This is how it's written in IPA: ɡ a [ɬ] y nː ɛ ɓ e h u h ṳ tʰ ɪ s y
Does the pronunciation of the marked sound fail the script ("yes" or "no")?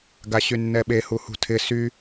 yes